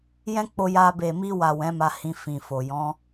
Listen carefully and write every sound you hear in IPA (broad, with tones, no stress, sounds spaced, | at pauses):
j ɛ̃˦ k͡p o˧ j a˧ b e˨ m i˧ w a˨ w ɛ̃˨˦ m a˧ h ĩ˧ f ĩ˨ f o˨ j ɔ̃˨˦